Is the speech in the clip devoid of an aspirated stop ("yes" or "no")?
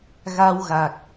yes